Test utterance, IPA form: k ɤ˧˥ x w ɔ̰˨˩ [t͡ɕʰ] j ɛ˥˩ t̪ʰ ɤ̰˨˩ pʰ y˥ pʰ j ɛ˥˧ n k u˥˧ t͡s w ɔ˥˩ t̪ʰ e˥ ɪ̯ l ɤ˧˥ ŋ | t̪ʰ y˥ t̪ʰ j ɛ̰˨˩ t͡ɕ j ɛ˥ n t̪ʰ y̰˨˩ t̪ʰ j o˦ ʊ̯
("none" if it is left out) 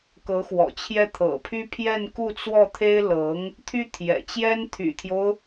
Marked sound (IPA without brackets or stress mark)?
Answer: t͡ɕʰ